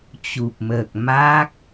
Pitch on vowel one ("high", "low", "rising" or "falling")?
low